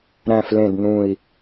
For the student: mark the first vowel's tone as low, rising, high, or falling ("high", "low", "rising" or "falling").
low